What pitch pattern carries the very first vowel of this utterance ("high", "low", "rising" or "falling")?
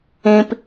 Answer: low